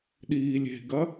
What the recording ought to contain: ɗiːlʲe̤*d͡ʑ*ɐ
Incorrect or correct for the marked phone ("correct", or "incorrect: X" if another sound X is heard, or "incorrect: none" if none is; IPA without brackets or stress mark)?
incorrect: ɡ